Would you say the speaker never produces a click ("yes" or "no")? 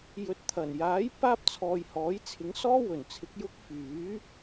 yes